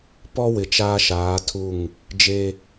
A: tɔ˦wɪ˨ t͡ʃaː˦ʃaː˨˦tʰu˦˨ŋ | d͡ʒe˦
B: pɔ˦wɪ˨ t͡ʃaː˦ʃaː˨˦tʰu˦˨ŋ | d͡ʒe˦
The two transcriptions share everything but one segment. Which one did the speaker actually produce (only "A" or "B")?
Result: B